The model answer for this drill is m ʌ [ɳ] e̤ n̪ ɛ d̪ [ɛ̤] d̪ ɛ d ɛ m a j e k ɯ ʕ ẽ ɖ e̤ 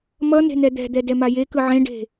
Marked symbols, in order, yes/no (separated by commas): no, yes